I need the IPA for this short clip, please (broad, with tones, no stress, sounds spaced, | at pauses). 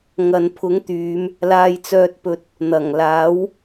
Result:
ŋ ɐ˨ n pʰ ʊ˨˥ ŋ t̪ yː˨˧ m | l aː˧ j t͡s œː˧ t̚ p ɵ˧ t̚ | n̪ ɐ˨˩ ŋ l aː˨˥ w